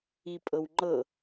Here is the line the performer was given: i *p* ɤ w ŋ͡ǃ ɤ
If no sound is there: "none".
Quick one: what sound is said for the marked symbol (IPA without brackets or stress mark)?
pʼ